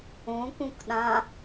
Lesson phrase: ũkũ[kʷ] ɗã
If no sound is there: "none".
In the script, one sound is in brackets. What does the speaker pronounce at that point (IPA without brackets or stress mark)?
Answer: k